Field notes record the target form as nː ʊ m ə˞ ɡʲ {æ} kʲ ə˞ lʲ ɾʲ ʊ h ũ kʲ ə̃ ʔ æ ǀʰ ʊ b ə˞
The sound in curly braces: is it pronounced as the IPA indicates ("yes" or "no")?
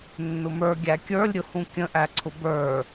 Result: yes